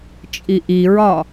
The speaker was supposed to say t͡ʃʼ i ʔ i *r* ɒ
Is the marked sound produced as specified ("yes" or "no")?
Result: no